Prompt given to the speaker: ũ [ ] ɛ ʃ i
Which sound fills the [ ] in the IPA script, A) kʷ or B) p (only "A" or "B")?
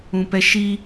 B